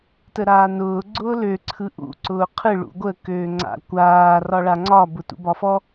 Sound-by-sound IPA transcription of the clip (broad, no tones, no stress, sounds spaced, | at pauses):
t ə ɾ aː n ʊː ɡ͡ǀ ʊː l ø ǀʰ ɯ ʔ ṵ ǀ ʊː qʰ ɯ ɭ ṵ ɡʷ ə k øː ŋ͡ǀ a̰ kʷ aː r ɒ ɭ a ŋ͡ǀ ɒ b ʊ t ṵ b ɒ f ɔ